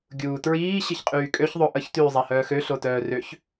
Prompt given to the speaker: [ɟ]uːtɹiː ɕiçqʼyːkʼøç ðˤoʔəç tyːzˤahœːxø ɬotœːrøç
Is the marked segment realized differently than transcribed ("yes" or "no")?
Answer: yes